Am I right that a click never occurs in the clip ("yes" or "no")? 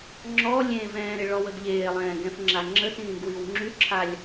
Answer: no